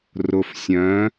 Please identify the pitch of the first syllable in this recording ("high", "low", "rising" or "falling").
low